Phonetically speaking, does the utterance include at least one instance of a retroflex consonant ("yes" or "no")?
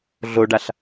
yes